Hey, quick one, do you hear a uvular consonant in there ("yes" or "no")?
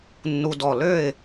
no